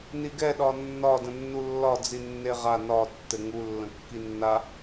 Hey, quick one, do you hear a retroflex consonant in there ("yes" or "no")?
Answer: no